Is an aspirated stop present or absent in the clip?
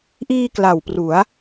absent